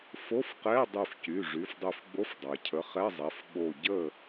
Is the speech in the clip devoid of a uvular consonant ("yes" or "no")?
no